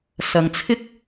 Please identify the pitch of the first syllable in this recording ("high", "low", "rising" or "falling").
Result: low